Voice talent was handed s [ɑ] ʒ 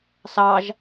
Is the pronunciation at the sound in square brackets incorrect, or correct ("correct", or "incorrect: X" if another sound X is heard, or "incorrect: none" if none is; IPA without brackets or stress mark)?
correct